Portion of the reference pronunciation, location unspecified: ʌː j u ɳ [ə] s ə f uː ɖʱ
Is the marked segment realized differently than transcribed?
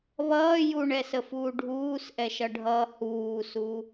yes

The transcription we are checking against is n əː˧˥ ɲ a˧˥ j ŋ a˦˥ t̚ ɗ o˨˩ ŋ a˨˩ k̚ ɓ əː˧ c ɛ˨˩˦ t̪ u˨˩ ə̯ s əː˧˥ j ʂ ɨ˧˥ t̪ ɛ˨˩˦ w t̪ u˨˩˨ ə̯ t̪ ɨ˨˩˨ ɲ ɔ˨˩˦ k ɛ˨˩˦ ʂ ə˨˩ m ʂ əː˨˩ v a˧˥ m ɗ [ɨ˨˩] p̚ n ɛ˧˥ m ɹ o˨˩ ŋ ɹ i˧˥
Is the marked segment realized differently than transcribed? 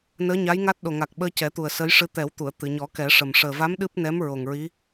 yes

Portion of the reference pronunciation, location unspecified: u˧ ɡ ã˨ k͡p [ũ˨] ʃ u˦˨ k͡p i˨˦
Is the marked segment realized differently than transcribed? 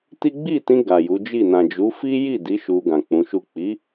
yes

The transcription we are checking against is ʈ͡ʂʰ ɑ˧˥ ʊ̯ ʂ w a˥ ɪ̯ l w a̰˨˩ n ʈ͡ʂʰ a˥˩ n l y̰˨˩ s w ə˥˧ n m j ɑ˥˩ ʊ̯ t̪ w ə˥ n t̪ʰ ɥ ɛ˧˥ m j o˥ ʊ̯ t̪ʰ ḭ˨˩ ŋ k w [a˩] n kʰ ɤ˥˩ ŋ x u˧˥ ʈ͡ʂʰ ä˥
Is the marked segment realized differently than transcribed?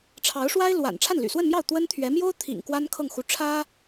yes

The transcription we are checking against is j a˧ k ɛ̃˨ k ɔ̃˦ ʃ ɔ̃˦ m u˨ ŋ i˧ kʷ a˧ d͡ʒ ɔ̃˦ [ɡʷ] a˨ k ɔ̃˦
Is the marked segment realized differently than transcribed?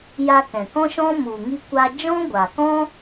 no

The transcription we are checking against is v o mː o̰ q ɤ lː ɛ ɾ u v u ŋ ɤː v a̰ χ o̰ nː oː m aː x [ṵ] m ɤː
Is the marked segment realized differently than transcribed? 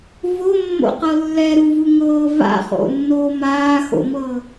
yes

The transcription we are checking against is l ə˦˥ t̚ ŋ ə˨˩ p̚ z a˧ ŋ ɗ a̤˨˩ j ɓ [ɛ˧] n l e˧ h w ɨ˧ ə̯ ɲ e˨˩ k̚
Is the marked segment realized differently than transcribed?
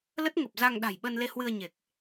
yes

